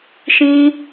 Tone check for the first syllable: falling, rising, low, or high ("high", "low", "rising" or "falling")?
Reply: high